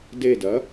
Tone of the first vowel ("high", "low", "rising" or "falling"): falling